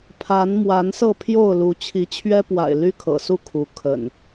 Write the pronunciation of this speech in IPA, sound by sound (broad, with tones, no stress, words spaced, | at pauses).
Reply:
pʰa˨˦nmwa˨˦n sɤ˥˨ pʰjo˥˨ʊ̯lu˨˦ t͡ɕʰi˨˦t͡ɕʰɥɛ˦pwa̰˨˩ɪ̯ ly˦kʰɤ̰˨˩su˥˨ kʰu˨˦ kʰə̰˨˩n